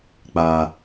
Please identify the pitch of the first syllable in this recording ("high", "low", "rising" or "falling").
low